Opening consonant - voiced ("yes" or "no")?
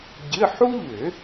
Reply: yes